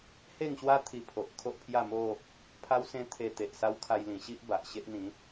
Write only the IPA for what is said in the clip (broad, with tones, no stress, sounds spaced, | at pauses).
h e˥˧ ŋ ɕ w a˦ t̪ʰ i˧ pʰ o˨ ʔ kʰ o˦ ʔ pʰ j a˥˧ m o˥˧ | pʰ a˦ w s ẽ˦ t̪ʰ e˧ t̪ e˨ ʔ s a˦ w kʰ a˧ j l ĩ˨˩ ɕ i˦ ʔ b a˨ ʔ ɕ e˦ ʔ n̪ ĩ˨˦